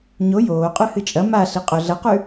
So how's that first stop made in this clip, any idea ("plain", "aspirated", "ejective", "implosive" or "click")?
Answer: ejective